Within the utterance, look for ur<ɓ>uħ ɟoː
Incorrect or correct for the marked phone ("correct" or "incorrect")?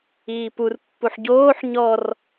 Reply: incorrect